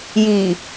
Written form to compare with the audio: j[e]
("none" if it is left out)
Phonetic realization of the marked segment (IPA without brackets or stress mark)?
i